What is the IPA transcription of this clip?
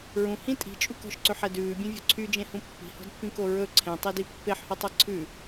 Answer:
ɹ ũ h ĩ tʼ i̤ t͡ʃʼ u k ɔ̤ ʃ ǀ ø ħ ɛ d ʉː bʲ ẽ vʲ ɔ̤ ǀʰ y d͡ʒ ẽ h ũ pː i̤ h ɔ̤ d pː ĩ k o ɹ ɵ ǀʰ ẽ tˤ i d i pː e ħ h o tˤ ɛ ǀʰ ʉ

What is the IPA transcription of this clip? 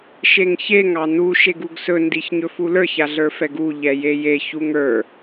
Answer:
ʃ e ŋ ç e ŋ ɑ n u ʃ e ɡ u ɡ s ɵ n d i ç ɲ ɵ f u l ə˞ ç a ɮ ə˞ f ɛ ɡ u ʎ ɛ j e j e ç u ŋ ə˞

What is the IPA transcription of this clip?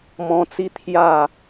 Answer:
m ɔ̃˦ t͡s i˦ t̪ʰ j a˥˧

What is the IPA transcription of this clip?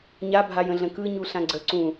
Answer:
ɲ a bʱ a j ə̃ ɮ ə̃ k ɯ ɲ u ɬ ã ɡ͡ǀ ə ǀ ũ

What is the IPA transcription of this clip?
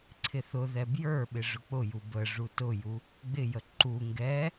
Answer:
ǀʰ ɪ θ ʊ ð ɛ b j ə˞ ɓ ɪ ʐ ʊ k͡p ʊ j u b ə ʐ u t ʊ j u | ɡ͡b ɪ j ə ǃ u ŋ ɡ ɛ

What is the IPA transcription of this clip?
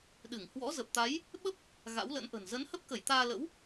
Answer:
ɗ ɨ˧˩ ŋ h w ɔ̰˧˥ z ə˨˩ p̚ t̪ a˨˦ j | ɓ ə˦˥ p̚ | ɣ a̰˧˥ w l ə̰˧˥ n ʔ ə̤˨˩ n z ə˨˦ n h ə˦˥ p̚ k ə˧˩ j t̪ aː˧ l ə̰˧˥ w

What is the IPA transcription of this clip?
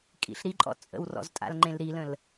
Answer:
kʼ ḭ ɬ ɾ i ǃʼ ɔ̰ t͡sʼ ə̰ w r ɔ̰ z tʼ a̰ l ŋ͡ǃ ẽ l ɾ i l ə̃ l

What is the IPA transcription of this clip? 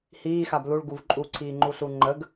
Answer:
h iː x a b l u ɭ ɡ u v ǃʼ u ǀʰ iː ŋ͡ǃ u ɬ u ŋ͡ǃ ə ɡ

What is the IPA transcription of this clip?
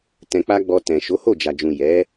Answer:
t ɛ̃˧ k͡p a˦ ɡ͡b ɔ˧ t ɛ̃˨ ʃ o˨˦ h o˦˨ d͡ʒ a˨ d͡ʒ ũ˨ j ɛ˨˦

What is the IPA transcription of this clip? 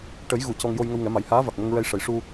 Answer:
ʈ ə˨˩˦ j ɣ u˨˩˨ c ɔ˧ ŋ j o˧ j ŋ ə˧ w ŋ ɛ˨˩˦ m a˨˩˦ j h aː˧˥ v a˨˩ k̚ m o˧ ŋ ɹ ɛ˧ j ʂ ə˨˩˦ j ʂ u˧

